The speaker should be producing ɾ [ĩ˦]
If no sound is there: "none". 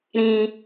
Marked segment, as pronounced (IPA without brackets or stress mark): ĩ˦